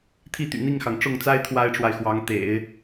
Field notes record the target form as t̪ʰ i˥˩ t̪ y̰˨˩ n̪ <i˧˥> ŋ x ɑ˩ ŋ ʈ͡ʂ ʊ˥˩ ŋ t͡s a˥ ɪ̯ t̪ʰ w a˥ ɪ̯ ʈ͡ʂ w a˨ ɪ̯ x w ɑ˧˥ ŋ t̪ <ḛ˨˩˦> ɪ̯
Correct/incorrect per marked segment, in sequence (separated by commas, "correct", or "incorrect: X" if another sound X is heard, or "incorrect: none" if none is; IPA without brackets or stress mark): incorrect: i˥˩, correct